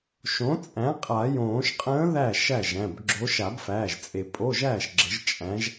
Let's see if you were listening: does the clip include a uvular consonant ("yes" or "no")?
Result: yes